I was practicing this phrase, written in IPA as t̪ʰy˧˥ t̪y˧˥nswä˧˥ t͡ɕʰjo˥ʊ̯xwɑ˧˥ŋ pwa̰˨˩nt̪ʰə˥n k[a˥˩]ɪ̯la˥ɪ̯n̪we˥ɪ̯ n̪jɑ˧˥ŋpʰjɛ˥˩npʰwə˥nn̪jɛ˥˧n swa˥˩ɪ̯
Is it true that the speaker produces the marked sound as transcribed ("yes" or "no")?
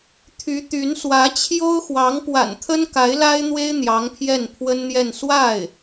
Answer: no